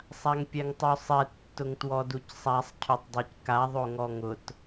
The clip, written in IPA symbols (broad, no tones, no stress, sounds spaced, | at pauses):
sˤ a ŋ pʲ ɛ ŋ tˤ o sˤ ɛ tː ʊ ŋ t w ɔ d u c sˤ a sˤ cʰ o tˤ dˤ e c k a ðˤ o ŋ ɔ ŋ ʊ t